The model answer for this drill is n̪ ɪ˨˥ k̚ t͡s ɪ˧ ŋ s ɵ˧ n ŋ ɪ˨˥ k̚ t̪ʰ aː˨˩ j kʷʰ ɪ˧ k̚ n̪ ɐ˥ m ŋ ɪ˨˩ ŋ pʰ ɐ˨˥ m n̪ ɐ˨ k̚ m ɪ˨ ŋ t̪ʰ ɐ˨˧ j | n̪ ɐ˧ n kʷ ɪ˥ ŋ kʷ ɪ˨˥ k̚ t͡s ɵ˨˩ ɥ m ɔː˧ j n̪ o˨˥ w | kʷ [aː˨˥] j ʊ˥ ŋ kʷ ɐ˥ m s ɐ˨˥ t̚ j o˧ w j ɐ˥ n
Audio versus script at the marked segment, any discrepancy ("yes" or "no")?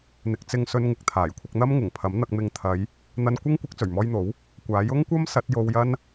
no